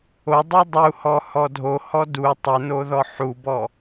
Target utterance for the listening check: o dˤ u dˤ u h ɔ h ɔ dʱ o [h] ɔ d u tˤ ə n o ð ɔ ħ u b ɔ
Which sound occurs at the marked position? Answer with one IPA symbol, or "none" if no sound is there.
h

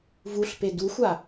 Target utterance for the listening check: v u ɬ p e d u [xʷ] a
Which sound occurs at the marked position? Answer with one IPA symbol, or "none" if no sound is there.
xʷ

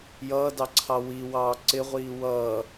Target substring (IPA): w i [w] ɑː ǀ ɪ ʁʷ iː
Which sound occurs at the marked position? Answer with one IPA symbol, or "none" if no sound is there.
w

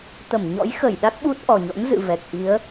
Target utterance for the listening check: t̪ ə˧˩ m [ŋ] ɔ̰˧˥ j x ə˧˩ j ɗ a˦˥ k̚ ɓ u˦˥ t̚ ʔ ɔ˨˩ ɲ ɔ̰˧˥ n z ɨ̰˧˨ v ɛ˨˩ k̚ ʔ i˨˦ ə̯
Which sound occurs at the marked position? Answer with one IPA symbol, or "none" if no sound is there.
ɲ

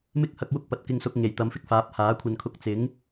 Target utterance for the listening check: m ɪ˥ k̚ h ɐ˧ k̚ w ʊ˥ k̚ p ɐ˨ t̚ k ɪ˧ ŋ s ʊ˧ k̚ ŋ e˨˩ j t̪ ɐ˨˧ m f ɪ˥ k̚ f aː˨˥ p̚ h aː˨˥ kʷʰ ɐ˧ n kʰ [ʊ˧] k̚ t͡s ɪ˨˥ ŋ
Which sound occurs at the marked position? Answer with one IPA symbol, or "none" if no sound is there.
ʊ˧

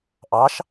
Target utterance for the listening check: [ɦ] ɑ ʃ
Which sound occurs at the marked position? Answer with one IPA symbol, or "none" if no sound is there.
ʔ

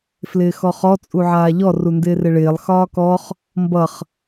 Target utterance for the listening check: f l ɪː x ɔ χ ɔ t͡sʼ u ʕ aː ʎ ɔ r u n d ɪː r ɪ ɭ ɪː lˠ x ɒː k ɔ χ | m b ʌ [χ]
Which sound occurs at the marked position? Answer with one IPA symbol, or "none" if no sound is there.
χ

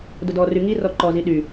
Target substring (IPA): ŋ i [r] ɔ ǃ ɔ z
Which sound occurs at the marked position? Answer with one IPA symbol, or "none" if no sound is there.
r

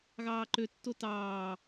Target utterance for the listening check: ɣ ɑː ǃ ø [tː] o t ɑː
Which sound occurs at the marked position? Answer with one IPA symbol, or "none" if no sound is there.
tː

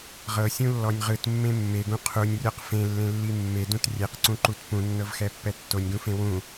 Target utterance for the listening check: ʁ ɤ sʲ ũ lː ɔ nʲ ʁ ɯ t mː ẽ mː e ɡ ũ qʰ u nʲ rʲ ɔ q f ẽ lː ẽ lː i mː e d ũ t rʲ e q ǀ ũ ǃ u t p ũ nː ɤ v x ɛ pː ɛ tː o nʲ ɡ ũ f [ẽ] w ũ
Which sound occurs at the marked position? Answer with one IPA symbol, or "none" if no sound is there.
ẽ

